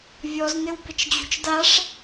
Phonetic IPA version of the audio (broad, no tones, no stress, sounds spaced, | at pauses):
vʲ ɔ z n ɘ w b ɘ t͡ʃ d͡ʑ ṳ t͡ʃ d a ʂ